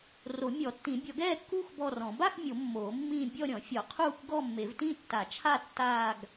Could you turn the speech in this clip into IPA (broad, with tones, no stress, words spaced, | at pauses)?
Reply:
ro˨˩˦mʲɔ˨˩˦tːĩ˨˩˦ bʲɔ˨˩˦ɡɛː˥˧kːuː˥˧x bɔ˥˧rɔ̃˨˩˦ ba˥˧x mʲo˨˩˦ mːoː˨˩˦mːĩː˥˧ bʲɔ˥˧ɾʲɔ̃˨˩˦ fʲɔ˨˩˦qʰuː˥˧kʷɡɔ˥˧mːe˨˩˦v tĩ˥˧tːa˨˩˦t͡ʃʰa˥˧ tːaː˥˧ɡ